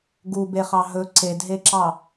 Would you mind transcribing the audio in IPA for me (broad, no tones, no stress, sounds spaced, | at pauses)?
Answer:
ɡ u b e χ ɑ ɦ ɵ ǀ e d ɦ e ǁ ɑ